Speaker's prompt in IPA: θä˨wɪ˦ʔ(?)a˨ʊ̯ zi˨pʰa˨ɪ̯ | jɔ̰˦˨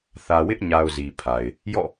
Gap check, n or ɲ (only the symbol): ɲ